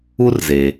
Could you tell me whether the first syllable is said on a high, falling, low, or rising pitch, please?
high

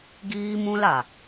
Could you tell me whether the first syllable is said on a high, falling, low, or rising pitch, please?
high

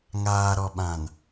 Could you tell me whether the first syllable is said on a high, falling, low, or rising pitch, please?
low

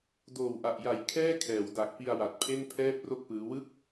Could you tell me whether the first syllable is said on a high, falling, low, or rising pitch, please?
low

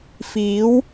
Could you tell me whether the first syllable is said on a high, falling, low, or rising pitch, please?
rising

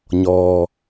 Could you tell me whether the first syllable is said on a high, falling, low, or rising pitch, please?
low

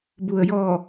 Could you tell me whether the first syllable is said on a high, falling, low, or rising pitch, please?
low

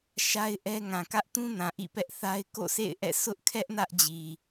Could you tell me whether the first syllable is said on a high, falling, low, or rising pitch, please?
high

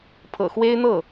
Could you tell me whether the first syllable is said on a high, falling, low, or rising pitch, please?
low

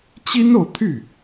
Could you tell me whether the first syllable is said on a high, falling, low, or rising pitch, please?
high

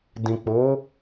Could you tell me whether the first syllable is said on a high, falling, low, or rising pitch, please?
low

